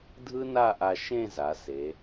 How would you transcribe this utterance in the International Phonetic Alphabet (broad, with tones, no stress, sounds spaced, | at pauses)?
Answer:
dʱ ɯ˥ n a˥˧ ʔ a˧ ʃ ẽ˥˧ z a˩˧ s e˩˧